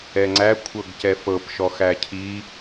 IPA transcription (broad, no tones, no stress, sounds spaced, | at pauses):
ɛ ŋ͡ǀ æ kʷʰ ɤ ɡ c ɛ f ɤ p ʃ ɔ x æ cʰ i